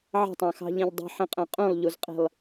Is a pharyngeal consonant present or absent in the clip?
present